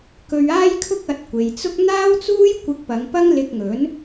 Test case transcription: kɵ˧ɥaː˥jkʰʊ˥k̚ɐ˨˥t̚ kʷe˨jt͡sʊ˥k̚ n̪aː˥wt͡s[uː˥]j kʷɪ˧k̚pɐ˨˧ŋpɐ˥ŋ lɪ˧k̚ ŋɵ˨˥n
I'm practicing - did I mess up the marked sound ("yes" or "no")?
no